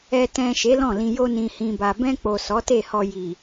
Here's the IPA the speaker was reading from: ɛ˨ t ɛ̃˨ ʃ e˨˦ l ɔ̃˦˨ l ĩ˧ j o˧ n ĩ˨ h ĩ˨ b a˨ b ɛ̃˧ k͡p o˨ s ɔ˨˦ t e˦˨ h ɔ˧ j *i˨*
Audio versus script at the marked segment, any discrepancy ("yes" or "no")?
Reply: no